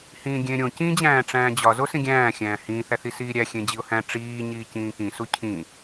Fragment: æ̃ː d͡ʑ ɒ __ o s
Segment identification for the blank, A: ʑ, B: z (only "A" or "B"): B